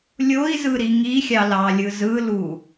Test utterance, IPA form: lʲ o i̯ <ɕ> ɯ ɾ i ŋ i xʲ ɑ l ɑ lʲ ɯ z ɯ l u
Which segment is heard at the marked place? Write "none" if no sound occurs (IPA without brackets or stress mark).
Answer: z